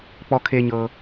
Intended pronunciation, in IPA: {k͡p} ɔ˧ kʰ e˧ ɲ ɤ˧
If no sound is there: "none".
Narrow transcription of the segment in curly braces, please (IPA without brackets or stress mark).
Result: k͡p